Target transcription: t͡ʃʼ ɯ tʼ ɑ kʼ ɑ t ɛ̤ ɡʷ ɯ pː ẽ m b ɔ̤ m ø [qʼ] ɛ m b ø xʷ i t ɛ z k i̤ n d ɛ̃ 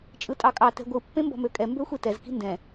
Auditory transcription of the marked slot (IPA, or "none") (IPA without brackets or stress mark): kʼ